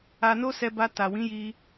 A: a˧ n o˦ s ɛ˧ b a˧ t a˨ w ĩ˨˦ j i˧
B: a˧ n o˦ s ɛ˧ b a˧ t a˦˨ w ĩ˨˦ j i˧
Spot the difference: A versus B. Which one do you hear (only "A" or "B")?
A